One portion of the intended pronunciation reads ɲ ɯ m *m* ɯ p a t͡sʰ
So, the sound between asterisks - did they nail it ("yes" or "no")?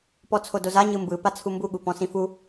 no